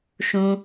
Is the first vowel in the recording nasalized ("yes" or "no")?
yes